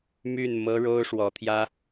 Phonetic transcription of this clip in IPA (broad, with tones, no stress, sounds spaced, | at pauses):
m y˥˩ n m ɤ˥ ɻ o˥ ʊ̯ ʂ w ɔ˧˥ t̪ʰ j ä˥